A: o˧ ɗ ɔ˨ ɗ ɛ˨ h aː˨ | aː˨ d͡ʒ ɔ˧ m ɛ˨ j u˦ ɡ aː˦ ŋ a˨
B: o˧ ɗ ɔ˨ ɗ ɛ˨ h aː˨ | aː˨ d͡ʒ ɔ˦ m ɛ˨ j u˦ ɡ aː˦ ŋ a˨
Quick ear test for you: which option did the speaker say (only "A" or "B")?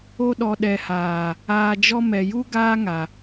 A